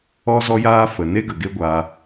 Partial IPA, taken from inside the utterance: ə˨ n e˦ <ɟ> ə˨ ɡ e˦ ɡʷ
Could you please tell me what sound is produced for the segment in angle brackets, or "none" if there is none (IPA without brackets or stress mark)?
ɡ